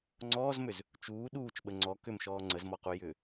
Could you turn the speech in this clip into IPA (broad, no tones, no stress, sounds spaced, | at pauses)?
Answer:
ŋ͡ǀ ɔː z m ʏ z | t͡ʃ uː ɗ uː t͡ʃ ɓ ə ŋ͡ǀ ɔ k ʏ m ʃ ɔː ŋ͡ǀ ə z m ɔ q u j ʏ